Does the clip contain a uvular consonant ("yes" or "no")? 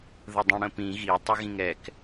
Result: no